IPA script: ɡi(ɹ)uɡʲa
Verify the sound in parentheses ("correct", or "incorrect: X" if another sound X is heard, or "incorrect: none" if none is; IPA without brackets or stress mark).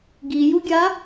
incorrect: j